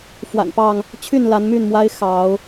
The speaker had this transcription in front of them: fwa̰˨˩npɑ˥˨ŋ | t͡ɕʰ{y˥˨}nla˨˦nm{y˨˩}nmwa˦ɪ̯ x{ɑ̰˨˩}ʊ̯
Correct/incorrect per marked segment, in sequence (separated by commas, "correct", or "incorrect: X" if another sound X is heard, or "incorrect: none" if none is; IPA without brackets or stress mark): correct, incorrect: y˥˨, incorrect: ɑ˨˦